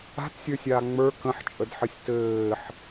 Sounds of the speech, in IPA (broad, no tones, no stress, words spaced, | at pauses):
a̤tsʲə˞sʲaː ŋ͡mə˞ kə̃ħt͡ʃʼədħəsʲ tɘːħ